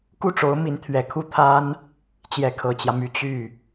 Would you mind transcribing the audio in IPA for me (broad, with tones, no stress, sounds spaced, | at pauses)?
k u˥˩ ʈ͡ʂ o˧˥ ʊ̯ m i˧˥ n t̪ʰ ɥ ɛ˨˩ kʰ u˥˩ t̪ʰ a˥ n | t͡ɕ j ɛ˧˥ kʰ ɤ˨˩ t͡ɕ j ä˦ m y˧˥ t͡ɕ y˥˩